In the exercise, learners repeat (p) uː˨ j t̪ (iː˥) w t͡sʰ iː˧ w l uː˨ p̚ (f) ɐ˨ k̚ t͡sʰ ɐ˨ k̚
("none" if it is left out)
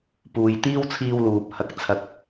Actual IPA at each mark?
p, iː˥, h

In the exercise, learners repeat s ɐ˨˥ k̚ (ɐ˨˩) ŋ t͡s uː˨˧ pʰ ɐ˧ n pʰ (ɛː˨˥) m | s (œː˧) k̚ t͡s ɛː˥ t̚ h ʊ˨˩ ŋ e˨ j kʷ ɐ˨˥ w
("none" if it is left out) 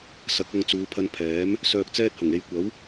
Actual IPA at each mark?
ɐ˧, ɛː˨˥, œː˧

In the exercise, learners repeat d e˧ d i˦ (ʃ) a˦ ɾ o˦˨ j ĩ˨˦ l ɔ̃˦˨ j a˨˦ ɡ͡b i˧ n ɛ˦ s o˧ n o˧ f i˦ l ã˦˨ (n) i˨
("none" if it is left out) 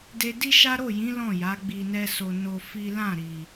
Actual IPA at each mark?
ʃ, ɾ

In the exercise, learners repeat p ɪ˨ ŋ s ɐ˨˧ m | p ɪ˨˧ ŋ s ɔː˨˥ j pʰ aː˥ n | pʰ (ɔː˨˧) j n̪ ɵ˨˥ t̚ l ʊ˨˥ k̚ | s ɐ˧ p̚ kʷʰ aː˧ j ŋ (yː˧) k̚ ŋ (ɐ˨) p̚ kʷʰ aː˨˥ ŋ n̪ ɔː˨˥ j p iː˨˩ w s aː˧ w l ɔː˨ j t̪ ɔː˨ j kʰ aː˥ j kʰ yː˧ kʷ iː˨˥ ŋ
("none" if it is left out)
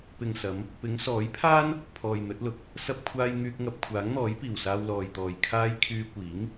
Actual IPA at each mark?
ɔː˨, yː˥, ɐ˧

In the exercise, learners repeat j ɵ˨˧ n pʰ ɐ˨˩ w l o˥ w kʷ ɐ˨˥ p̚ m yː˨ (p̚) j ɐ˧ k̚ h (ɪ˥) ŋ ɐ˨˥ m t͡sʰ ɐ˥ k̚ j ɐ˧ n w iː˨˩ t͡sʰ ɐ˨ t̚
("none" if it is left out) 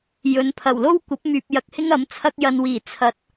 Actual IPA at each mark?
p̚, ɪ˥

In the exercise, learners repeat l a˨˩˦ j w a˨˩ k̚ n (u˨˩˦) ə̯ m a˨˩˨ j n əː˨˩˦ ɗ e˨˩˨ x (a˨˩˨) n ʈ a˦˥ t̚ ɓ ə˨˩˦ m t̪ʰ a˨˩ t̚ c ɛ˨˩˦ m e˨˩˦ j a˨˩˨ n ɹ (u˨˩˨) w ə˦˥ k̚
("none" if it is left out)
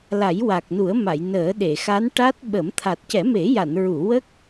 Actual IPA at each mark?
u˨˩˦, a˧˥, u˨˩˨

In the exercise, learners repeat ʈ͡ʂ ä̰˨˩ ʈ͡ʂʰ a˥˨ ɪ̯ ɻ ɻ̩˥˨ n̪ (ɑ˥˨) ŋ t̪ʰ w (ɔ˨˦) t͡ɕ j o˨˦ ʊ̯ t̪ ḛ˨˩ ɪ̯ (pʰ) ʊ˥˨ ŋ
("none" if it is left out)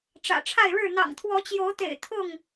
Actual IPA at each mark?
ɑ̰˨˩, ɔ˨˦, t̪ʰ

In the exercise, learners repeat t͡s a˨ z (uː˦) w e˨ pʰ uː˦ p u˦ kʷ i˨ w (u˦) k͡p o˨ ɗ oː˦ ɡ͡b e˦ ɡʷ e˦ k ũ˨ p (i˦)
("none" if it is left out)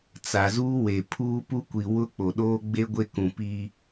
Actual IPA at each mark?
uː˦, ʊ˦, i˦

